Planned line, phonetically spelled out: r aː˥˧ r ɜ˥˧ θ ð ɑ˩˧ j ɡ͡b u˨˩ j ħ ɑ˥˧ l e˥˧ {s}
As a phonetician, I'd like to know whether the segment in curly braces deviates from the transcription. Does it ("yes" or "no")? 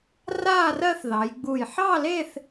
yes